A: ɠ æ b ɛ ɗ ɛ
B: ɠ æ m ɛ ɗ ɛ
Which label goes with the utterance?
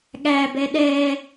A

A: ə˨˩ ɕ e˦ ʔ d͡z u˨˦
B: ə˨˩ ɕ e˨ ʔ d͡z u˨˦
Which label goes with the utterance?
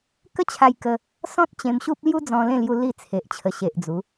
B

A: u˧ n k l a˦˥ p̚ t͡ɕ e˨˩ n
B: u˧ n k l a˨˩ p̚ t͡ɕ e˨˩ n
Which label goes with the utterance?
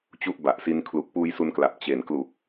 B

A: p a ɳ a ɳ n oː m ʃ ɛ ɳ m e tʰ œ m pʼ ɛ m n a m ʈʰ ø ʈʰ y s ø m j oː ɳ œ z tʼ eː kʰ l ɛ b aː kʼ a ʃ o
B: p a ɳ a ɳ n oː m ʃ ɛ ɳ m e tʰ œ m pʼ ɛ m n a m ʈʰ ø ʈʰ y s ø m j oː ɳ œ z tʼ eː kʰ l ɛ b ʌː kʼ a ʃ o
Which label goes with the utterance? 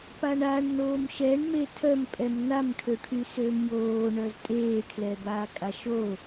A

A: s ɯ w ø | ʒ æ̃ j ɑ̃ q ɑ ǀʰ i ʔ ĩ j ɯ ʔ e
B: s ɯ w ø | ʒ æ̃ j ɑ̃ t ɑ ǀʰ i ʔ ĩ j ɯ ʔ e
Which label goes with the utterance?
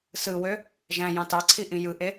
B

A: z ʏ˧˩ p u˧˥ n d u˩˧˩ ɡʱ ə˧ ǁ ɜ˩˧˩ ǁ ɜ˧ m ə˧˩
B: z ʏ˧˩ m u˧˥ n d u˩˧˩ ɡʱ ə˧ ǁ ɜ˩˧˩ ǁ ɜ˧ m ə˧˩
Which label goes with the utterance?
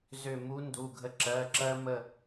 B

